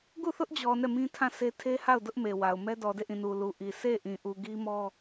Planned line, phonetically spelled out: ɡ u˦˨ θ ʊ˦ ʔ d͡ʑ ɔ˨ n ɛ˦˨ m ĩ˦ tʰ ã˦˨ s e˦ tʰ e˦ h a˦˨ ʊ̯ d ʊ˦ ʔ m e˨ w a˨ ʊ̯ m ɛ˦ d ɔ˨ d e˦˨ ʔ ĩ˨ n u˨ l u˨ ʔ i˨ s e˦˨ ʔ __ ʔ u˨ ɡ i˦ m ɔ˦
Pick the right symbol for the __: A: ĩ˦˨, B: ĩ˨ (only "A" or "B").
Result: B